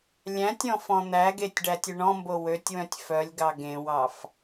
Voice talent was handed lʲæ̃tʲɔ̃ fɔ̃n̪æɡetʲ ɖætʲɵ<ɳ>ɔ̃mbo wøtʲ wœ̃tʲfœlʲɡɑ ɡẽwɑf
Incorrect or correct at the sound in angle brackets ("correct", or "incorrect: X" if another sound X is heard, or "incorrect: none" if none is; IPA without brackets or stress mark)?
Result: correct